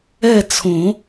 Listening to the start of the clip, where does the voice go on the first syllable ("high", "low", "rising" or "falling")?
falling